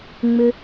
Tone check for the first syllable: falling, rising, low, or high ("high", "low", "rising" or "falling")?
low